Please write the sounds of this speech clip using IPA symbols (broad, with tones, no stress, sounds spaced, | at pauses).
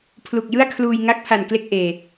pʰ l u˨˩ k̚ j ɯ˥˩ a̯ kʰ l uː˧ j ŋ a˦˥ k̚ pʰ a˨˩ n k l e˥˩ k̚ ʔ eː˨˩